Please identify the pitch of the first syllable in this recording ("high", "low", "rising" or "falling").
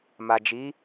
low